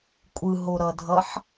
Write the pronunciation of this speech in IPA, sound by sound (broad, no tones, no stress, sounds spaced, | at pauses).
kʷʼ ɯ ɦ o ɾ ʌ dʱ ʌ ħ